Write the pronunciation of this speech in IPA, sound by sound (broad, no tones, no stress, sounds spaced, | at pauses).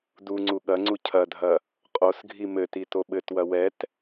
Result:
d u ŋ͡ǀ u ɠ ɐ ŋ͡ǀ u cʰ ɐ dʱ ɐ | qʼ o s ɡʱ i m ɘ t i t o ɓ ɘ t w ɐ w ɛ t